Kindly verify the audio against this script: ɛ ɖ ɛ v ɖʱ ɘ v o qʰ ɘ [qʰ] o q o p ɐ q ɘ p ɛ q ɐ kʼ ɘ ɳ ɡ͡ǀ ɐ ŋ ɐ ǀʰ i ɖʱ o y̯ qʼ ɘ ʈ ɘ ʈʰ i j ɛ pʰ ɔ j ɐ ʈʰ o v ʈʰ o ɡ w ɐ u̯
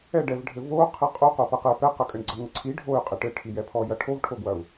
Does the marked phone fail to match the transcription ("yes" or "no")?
yes